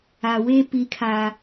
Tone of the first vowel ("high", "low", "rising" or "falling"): low